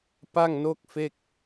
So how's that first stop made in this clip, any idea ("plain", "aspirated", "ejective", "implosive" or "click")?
plain